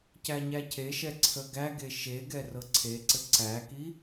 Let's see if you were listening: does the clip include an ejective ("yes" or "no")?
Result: no